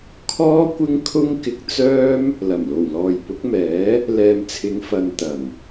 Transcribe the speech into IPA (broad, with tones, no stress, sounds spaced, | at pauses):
kʰ ɔː˥ kʷ ɪ˥ ŋ kʰ ʊ˥ ŋ k ɪ˧ k̚ t͡s œː˥ m | l ɐ˨˩ m l o˨˩ w l ɔː˨ j p ʊ˨˥ k̚ m ɛː˨˥ | l ɛː˨ m t͡sʰ ɪ˨˧ ŋ f ɐ˨ n t̪ ɐ˨˩ n